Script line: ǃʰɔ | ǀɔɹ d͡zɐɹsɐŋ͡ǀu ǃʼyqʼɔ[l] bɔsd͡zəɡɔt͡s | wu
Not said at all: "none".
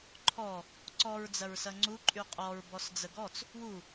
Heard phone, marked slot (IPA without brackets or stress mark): ɹ